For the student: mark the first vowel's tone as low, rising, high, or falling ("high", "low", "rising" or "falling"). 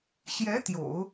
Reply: rising